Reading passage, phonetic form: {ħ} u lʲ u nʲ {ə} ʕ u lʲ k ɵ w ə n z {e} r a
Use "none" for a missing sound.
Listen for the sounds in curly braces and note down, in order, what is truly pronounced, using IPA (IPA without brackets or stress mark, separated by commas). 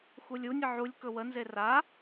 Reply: x, ə, e